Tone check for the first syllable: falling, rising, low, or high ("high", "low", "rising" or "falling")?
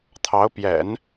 rising